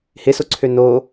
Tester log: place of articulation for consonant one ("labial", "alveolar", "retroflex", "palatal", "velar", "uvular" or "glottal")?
glottal